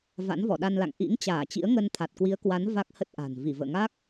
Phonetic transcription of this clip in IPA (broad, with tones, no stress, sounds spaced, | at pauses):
v a̰˧˥ n v ɔ˧˩ ɗ a˧ n l a̰˧˨ ŋ ʔ ḭ˧˥ ŋ t͡ɕ aː˧˩ t͡ɕ ḭ˧˥ ə̯ ŋ ə˧ n t̪ʰ a˨˩ t̚ k w i˨˦ ə̯ k w a˨˦ n v a˦˥ k̚ h ə˦˥ t̚ ʔ a̤˨˩ n v i˧˩ v ə̰ː˧˨ ŋ a˦˥ k̚